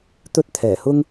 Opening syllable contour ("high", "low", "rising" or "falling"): high